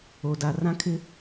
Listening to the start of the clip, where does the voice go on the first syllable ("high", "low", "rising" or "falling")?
low